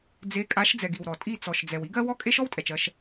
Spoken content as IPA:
d͡z e˨˦ kʼ a˨˦ ʃ d͡z ɛ˨ ɡ i˨ w ɾ ɔ˨ tʼ i˦˨ t͡s ɔ˨ ʃ d͡z ɛ˨ w i˦ ɡ ɜ˦ w ɔ˦ kʼ e˦ ʃ ɔ˦ w tʼ ɛ˨ t͡ʃ ɜ˦ ʃ

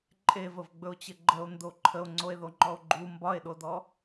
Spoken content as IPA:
ǃʼ e v ə v ɡ͡b ɵ o̯ t͡ɕ ɘ ɡ͡ǃ ə o̯ n d o ǃʰ ə o̯ ŋ͡ǀ o e̯ ð o ŋ͡ǃ ɔ o̯ ɡ͡ǃ u m b ɒ e̯ ɗ o d ɔ

